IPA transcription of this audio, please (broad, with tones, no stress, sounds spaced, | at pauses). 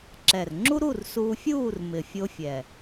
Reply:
ǁ ɛ˨˩ r ŋ͡ǁ u˥ ɾ u˥˨ r s uː˧ fʲ uː˥˨ r m ɪ˨˩ fʲ o˧ fʲ ɛ˨˩